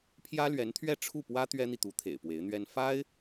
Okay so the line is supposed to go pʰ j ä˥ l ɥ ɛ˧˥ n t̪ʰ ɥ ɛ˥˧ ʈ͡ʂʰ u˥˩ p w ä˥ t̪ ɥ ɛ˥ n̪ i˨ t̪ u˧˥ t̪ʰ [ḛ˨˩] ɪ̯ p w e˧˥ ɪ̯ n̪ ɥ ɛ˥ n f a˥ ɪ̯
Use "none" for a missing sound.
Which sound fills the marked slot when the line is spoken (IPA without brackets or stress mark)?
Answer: ḛ˨˩